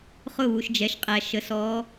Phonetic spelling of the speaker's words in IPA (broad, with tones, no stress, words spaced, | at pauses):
χʊ˦˨βu˨ʃd͡ʒɛ˨ʃqʼæ˨ ʃə˨sɔ˨˦